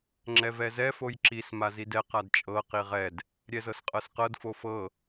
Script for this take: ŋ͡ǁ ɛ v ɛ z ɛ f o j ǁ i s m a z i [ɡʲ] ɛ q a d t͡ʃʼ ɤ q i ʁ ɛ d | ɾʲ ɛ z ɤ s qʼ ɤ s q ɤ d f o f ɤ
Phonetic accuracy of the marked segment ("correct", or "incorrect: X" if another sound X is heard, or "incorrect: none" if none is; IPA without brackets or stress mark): incorrect: d